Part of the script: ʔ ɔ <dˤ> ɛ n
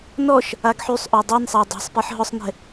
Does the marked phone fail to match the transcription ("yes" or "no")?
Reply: no